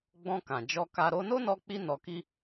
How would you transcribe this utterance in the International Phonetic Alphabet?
ɡ͡b ɔ̃˧ k ã˨ d͡ʒ ɔ˧ k a˧ ɾ o˧ n o˦ n ɔ˧ k͡p i˧ n ɔ˧ k i˦

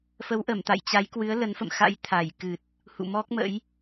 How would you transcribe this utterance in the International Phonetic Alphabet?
f ə˨˦ w ʔ ə˧˩ m t̪ a̰˧˨ j t͡ɕ a˨˦ j k w ɨ˨˦ ə̯ l ə˨˦ n f ə̰˧˨ m x a̰˧˥ j t̪ʰ a˧˩ j k ɨ˨˩ t̚ | h ṵ˧˨ m ɔ˦˥ k̚ m ə̰˧˥ j

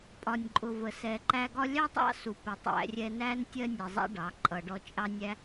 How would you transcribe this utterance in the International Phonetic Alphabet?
pʼ ɒ˨ nʲ ǃʼ ʊ˨ v ə˨ s ɛ˨ ǃ æ˧ ɡ ɒ˦ lʲ ɑ˦ tˤ ɑ̰˦ s u˨ p ɪ˨ tˤ æ̰˧ rʲ ɛ˧ n æ˦ n tʲ ɜ˦ nʲ ɛ˨ zˤ æ̰˦ ɖ ɑ˨˦ ǃʼ ʌ˨ ɖ ɔ˧ t͡ʃʼ ɑ˦ nʲ æ˦

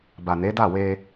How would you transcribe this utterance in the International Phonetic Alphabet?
b a˨ n e˨˦ d a˦˨ w e˧

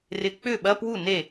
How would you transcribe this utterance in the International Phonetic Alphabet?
r ɪ˨ k͡p ʏ˥˩ ɓ ɐ˧˥˧ p w u˥˩ n e˥˩

